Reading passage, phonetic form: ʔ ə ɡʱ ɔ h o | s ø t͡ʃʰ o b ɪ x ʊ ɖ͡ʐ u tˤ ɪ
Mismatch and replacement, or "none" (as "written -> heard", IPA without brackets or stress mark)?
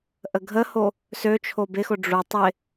ɔ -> ə